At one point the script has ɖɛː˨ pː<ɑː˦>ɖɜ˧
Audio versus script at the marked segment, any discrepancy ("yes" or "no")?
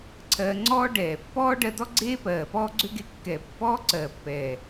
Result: yes